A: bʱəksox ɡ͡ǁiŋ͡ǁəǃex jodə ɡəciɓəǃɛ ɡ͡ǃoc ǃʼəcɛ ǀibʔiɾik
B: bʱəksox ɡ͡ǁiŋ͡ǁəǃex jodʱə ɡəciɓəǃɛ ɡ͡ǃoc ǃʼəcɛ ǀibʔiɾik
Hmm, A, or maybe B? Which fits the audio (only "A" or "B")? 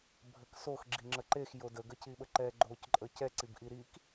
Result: A